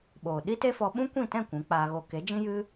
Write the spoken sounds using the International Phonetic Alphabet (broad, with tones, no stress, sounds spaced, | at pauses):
ɓ oː˨ ɗ i˦ t e˦ f ɔ˧ ɓ ũ˦ kʷ ĩ˦˨ t ɛ̃˦˨ kʷ ũ˨˦ k͡p aː˧ ɣ o˧ k e˨˦ d͡ʒ ĩ˦ j ɨ˦